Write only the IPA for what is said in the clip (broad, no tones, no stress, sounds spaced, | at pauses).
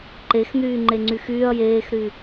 ǃ e x n̪ yː ŋ͡ǃ e ŋ͡ǀ y x yː ɐ̯ j eː x ɾ y